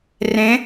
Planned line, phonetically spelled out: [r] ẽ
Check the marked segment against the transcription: correct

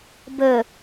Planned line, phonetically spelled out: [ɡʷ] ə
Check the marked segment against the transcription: incorrect: b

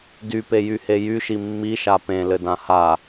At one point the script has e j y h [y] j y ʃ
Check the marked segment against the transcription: incorrect: e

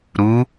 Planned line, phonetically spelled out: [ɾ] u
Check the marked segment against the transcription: correct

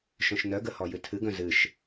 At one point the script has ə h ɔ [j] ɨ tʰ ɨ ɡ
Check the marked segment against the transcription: correct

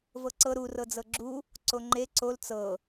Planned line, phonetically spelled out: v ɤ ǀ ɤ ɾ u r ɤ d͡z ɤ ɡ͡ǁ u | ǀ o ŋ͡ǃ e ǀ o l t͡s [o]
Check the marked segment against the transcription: incorrect: ɤ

